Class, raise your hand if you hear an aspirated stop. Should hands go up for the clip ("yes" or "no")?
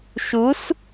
no